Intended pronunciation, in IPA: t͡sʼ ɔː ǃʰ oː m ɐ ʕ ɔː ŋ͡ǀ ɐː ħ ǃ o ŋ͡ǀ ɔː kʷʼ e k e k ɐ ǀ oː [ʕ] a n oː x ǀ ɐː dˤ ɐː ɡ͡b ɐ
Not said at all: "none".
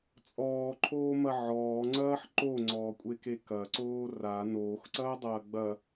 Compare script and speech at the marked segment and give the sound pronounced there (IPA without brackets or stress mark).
r